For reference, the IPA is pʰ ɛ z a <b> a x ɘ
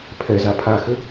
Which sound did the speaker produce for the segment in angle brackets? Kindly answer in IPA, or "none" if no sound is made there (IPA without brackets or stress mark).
pʰ